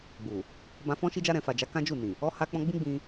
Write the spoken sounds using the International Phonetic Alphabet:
ɡ͡bu˨ | bã˧fɔ̃˦ ʃi˧d͡ʒa˧ɾɛ̃˨ fa˨d͡ʒa˨˦ kã˦d͡ʒu˦˨nĩ˨ | ɔ˧ ha˧k͡pɔ̃˧ ɡ͡bĩ˦ɡ͡bĩ˧

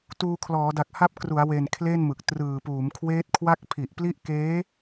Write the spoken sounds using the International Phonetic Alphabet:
tuː˧ kʰlɔː˩˦da˨˩k̚ ha˦˥p̚kru˩˦a̯we˨˩n kʰle˥˩nmɯ˨˩k̚ trɯː˨˩puː˩˦mkʰweː˦˥t̚kʰwa˥˩k̚ pʰi˨˩ʔpli˦˥ʔkeː˦˥

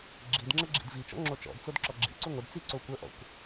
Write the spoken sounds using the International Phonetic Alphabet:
ɡ͡ǁidŋ͡ǁə ɡ͡ǁḭdvit͡ʃɔ̰ ŋ͡ǁot͡ʃɔ̰dt͡sod ǁɔɡ͡ǁḭǀu ŋʷədt͡si ǀokʷəʔɔ̰kʷ

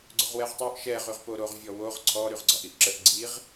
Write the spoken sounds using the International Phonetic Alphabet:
ɡ͡ǀoʁwɛʁtˤoʔ ʃɛ ʁyʁpoɾoʁ vʲɔwoʁ ǀʰɔ ɾyʁɡ͡ǀɒʔiʔǁəʔ ɡ͡ǀiʁ

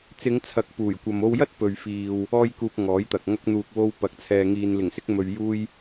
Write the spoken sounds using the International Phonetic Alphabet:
t͡sɪ˨˧ŋt͡sʰɐ˨k̚ puː˨˩jkʷɐ˨mo˧wjɐ˥t̚ pɵ˨ɥfiː˨w | ɔː˥jkuː˧p̚ŋɔː˨˥jt̪ɐ˨k̚ ŋɐ˧k̚n̪uː˨k̚wo˧w pɐ˨˥k̚t͡sʰɛː˨ ŋiː˨nlɪ˨˩ŋsɪ˧k̚mɵ˨ɥ juː˧j

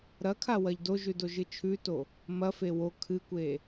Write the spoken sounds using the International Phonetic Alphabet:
ɾɐkʰawɐʎ doʒʉdoʒɨ t͡ʃʰʉto | mɐfe wo kʰɨkʷe

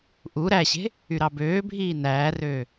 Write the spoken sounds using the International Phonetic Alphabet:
ʔu ɾæɕe̤ | yɾɑbøːbʱiː næːrøː

